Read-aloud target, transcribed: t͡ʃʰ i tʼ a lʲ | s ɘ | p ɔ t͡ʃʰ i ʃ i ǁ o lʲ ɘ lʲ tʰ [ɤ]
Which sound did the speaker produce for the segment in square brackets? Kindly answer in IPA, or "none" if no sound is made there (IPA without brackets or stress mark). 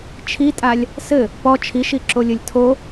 o